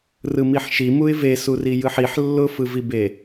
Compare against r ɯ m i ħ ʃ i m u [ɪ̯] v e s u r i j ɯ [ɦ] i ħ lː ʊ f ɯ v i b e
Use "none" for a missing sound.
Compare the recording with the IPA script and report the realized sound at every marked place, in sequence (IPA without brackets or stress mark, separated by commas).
ɪ̯, ħ